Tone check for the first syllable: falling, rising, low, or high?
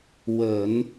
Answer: low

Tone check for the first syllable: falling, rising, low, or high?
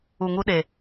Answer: low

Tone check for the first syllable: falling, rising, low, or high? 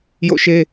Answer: falling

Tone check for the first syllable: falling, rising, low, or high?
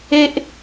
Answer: high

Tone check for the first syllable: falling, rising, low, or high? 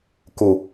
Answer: low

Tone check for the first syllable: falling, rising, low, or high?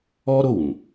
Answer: high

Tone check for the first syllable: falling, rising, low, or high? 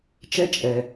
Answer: high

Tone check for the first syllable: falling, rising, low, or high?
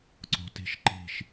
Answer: rising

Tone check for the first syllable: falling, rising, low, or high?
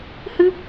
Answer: high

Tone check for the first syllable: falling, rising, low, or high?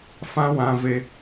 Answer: high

